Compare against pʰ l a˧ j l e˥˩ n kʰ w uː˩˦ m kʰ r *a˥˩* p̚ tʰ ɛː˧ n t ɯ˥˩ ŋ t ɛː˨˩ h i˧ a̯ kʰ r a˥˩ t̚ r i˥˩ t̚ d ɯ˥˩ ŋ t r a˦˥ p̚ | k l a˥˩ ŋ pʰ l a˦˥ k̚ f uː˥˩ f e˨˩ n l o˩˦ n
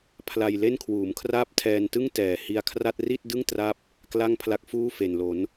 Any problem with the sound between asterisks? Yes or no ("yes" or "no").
yes